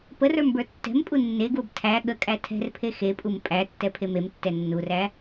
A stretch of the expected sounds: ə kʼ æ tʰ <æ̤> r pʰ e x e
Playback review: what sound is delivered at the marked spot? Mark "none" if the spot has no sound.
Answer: ɛ̤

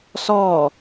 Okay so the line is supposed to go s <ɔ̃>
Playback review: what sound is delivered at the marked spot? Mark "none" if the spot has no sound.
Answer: ɔ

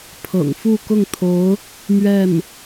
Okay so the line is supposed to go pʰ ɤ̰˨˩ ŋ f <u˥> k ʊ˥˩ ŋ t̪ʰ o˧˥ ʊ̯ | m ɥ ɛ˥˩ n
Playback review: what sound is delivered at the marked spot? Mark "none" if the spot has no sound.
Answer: u˥˧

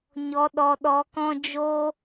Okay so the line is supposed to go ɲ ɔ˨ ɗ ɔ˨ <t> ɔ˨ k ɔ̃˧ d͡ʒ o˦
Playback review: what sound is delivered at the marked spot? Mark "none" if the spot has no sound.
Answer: ɗ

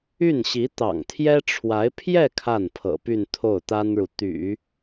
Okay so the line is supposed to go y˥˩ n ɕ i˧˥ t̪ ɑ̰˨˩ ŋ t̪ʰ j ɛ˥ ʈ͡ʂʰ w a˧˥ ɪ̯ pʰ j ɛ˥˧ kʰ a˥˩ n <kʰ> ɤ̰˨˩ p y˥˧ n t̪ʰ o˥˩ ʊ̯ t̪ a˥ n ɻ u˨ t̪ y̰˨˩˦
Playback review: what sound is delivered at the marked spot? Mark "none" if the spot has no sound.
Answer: pʰ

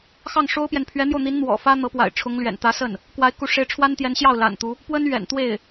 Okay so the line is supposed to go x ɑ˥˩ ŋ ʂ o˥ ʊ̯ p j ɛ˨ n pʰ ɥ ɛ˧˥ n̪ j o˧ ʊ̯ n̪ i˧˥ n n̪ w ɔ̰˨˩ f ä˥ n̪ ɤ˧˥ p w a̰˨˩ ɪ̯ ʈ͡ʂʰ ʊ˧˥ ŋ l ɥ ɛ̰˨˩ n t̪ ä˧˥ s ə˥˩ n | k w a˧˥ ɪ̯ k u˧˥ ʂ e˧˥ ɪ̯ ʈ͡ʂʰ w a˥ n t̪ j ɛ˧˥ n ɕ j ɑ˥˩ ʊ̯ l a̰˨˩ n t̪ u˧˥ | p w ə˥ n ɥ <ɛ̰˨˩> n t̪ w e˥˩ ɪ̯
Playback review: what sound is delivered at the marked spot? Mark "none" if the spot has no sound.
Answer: ɛ̰˨˩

